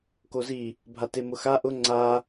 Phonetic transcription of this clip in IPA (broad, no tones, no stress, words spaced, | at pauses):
kozi | bʱatemʊxa ʔʊ ŋ͡ǀa